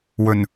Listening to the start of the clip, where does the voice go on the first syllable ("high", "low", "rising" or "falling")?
low